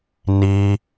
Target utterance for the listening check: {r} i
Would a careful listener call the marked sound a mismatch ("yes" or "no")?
yes